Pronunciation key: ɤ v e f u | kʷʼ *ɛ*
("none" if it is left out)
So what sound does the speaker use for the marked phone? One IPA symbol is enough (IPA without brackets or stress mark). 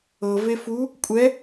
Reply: ɛ